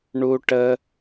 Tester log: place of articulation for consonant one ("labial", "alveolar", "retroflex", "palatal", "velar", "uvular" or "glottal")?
retroflex